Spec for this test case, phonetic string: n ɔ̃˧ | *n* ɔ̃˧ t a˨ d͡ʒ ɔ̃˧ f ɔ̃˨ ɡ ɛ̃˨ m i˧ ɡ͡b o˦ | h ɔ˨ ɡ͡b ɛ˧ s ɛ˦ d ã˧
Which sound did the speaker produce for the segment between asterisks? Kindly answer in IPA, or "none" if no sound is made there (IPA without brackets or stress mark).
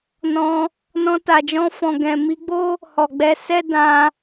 n